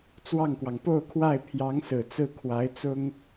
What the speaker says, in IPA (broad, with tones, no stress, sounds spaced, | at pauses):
t͡s w ɑ˥˩ ŋ k w ɑ˩ ŋ p o˥˧ ʊ̯ kʰ w a˥˩ ɪ̯ pʰ j ɑ˧˥ ŋ s ɹ̩˨˩ t͡s ɹ̩˥˩ kʰ w a˧˥ ɪ̯ t͡s ʊ˥ ŋ